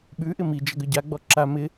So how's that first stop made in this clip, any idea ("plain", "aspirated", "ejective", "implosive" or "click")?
implosive